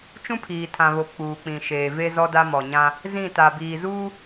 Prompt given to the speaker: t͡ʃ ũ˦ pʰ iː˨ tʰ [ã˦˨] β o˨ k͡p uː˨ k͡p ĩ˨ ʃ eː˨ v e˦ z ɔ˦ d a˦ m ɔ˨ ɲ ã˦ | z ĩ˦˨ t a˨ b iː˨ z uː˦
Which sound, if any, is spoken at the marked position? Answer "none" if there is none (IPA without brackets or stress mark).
ã˨